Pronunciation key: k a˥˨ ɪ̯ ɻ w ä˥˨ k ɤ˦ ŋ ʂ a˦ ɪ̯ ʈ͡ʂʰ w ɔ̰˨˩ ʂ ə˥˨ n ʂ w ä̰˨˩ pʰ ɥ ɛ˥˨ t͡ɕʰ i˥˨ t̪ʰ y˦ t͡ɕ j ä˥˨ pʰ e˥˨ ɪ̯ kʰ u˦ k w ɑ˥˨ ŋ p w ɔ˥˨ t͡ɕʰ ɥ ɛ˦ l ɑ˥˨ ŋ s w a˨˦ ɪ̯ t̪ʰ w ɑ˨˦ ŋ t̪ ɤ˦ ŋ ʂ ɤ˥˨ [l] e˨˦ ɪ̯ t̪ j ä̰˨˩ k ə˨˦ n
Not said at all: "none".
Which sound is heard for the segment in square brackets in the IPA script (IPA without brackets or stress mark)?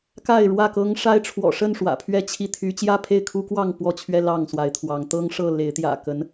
l